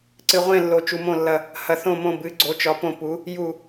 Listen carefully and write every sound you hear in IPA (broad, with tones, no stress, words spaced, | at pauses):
ǀɨ˨ʁʷẽ˦˨lːo˨ t͡ʃu˨mõ˦˨lːɐ˦˨ | hɐ˨θõ˦˨mõ˦˨ bɨ˨˦ ɡ͡ǀo˨˦t͡ʃɒ˨˦põ˦˨ pu˨˦ | ju˦˨